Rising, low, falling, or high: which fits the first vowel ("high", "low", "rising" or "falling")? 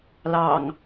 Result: low